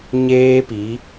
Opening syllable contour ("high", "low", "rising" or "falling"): high